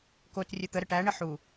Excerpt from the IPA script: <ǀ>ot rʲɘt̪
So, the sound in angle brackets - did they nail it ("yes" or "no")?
no